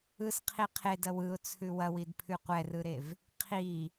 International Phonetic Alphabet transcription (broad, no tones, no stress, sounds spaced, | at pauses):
ɯ s qʰ i qʰ e d ɐ w ɯ ʊ̯ t͡sʰ ʉ w ɐ w i d pʰ ʉ qʷ ɛ r ɯ ɾ e v | qʰ i